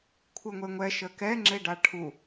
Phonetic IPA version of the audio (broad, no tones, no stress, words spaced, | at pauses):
kʷʰɨŋʷeŋʷɛ ʃəkɛ ŋ͡ǁeɖaʈʰu